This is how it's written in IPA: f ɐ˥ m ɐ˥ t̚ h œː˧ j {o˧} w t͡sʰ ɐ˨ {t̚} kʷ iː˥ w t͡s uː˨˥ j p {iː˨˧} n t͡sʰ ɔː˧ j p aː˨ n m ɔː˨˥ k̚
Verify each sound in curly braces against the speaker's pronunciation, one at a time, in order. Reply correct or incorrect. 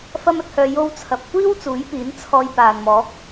correct, incorrect, incorrect

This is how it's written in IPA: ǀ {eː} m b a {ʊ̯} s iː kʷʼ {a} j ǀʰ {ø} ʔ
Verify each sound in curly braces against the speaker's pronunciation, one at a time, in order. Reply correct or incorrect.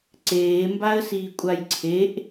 correct, incorrect, correct, incorrect

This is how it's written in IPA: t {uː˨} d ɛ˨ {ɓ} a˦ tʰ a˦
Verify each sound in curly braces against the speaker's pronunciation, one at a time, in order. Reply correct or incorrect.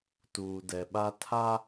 correct, correct

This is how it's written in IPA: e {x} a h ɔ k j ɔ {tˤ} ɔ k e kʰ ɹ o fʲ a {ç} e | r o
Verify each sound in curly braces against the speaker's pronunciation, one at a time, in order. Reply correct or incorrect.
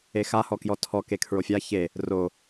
correct, incorrect, correct

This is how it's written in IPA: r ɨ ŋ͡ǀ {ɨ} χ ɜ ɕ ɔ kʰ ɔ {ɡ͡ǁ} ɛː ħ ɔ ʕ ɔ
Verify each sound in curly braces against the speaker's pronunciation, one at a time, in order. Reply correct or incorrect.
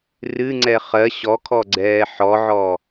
incorrect, incorrect

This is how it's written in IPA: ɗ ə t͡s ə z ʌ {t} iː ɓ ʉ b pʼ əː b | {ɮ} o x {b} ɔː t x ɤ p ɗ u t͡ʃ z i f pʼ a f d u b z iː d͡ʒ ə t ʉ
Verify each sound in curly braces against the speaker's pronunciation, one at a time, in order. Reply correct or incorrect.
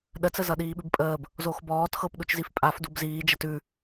incorrect, incorrect, correct

